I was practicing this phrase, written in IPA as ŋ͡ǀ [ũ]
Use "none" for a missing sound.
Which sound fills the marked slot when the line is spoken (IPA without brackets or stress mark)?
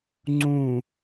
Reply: ũ